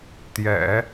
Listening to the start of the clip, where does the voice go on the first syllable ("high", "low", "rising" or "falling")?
low